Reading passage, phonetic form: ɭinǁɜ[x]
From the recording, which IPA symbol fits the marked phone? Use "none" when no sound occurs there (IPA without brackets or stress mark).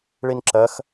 x